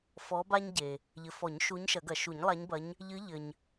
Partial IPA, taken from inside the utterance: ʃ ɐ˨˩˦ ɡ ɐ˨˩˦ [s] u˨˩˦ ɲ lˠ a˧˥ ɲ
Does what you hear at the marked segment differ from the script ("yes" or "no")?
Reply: yes